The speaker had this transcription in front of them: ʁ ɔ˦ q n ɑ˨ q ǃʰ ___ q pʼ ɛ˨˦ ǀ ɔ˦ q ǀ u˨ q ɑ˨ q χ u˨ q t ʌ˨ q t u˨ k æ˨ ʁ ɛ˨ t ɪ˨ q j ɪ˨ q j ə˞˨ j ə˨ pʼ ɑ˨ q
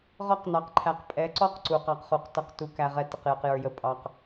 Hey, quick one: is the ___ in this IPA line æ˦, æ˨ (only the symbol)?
æ˨